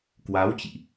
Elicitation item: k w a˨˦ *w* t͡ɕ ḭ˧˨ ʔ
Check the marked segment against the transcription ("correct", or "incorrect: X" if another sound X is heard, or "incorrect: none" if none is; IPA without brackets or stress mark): correct